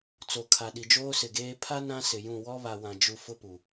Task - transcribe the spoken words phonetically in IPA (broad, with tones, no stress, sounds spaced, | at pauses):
t͡s o˨ kʰ a˨ ɗ i˨ d͡ʒ oː˦ s ɪ˨ ɡ eː˦ pʰ a˦ n ã˦ s ɪ˨ j ũ˦˨ w ɔ˦ β a˨ w ã˨ d͡ʒ u˦ f ʊ˦ p u˨